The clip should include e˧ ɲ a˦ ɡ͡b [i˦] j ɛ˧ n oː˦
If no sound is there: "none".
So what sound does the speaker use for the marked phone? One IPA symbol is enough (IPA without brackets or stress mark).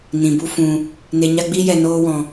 i˦